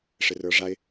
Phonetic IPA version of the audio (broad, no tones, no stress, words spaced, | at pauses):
ʂɪrə˞ʐaɪ̯